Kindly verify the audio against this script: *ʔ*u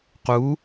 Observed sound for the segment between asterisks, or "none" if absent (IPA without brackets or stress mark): q